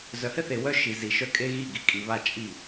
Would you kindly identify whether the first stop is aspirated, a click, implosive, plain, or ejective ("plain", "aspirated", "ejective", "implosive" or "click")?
ejective